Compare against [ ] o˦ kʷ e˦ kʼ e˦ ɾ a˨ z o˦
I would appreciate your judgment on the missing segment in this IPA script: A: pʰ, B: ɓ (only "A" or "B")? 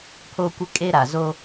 A